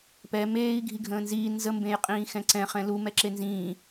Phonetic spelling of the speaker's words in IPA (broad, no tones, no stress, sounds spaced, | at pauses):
p ɛ m eː i̯ ɡʱ i ɡʱ ə̃ː n z iː n z ə m b ẽ j qʼ ĩː x ɛ̃ ǀ ɛ̃ χ ɛ̃ l u m ɛ ǁ e n z ĩː